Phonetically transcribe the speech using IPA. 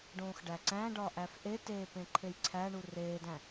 ɖ õː x ɖ æ ǀ æ̃ ɖ ɒ ʔ æ f ʔ e t eː p ẽ ǃʰ e j ǀʰ æ ɳ u r eː d æ̃

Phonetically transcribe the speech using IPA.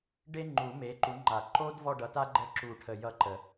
ɖ e˥ ŋ͡ǃ u˨˩˦ m e˨˦ ǃ u˨˦ ŋ͡ǃ a˨˩˦ ǃ o˥ d v ɔ˥˧ ɖ ʌ˨˦ t a˥ ɡ͡ǃ ə˥ ǁ u˧˩ ʈʰ ə˧˩ j ʌ˥ ǃ ə˨˩˦

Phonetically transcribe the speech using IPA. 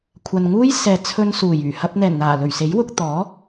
kʷʰ ɐ˨ n ŋ uː˥ j s ɛː˨ t͡sʰ ɵ˧ n s uː˨˩ j yː˨˩ h ɐ˧ p̚ n̪ ɛː˨˩ n n̪ aː˨˩ l ɵ˨˩ ɥ s e˨˥ j w ʊ˧ k̚ t̪ ɔː˨˥

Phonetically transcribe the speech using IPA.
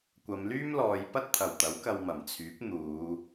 kʷ ɐ˨˧ m l yː˥ m l ɔː˨˧ j p ɐ˥ t̚ t̪ʰ ɐ˨˩ w t̪ ɐ˨˥ w k ɐ˧ w m ɐ˨˩ m t͡sʰ yː˨˥ p̚ n̪ uː˨˧

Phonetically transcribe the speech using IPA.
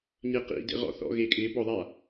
ɲ e q ḭ d ḛ ʁ ɔ̰ θ ɔ̰ ɣ e kʼ ɪː b ɔ ðˤ a

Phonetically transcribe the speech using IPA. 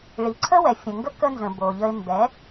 ɭ i˨ ǀʰ ə˦ w ɛ˨ fʲ ə̃˨ ŋ ɡ ə˦ k ə˦ n z ə̃˨ b o˨ ʎ ə˧ ɪ̯ m b ɛ˨˦

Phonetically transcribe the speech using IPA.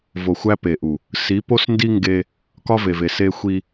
v o˨ xʷ æ˦ p e˨ ʔ u˨ | s i˨˦ p o˦ s n d i˦ ŋ ɡ e˦ | k ɒ˦ v e˨ v e˨ s e˦ xʷ i˦

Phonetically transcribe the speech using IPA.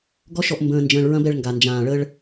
ɡ ɔ˦ ʃ ɔ˧ ʔ m b ə̃ː˧ n d͡ʒ ə̃ː˧ ɭ ɹ ɐ̃˦ b ɛ˧ ɭ ŋ ɡ a˨ n d͡ʒ ãː˨ ɭ ə˧ ɭ

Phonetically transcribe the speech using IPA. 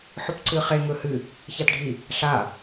ħ ɵ p ǀ ɨ χ e ŋ ɵ h ɨ | ç a t ɖʱ i | ɬ a

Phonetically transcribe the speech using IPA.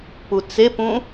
p u t͡s e p ũ

